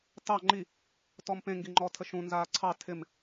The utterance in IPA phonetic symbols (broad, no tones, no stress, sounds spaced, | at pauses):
t ɑ ŋ͡ǃ i | t ɔ m p ẽ ŋ ɡ i ŋ͡ǃ ɔ tʰ ə ʃ ũ n z aː ǀʰ ɑ tʰ ɪ m